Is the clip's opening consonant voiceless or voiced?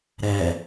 voiced